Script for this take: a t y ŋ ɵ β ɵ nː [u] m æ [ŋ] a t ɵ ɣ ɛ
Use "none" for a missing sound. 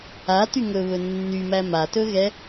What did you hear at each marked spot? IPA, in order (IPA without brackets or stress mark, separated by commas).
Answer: y, m